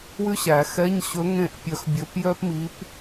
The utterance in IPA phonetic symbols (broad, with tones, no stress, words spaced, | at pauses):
wʉ˥ɕæ˨˩˦ xɛ˧˥˧ɲɕɵ˧˥ ŋẽ˥˨ʔpʲœ˧˥xbʲɵ˧˥p jœ˥pmi˧˥p